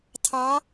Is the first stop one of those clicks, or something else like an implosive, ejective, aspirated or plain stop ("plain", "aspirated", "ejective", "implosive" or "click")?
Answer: aspirated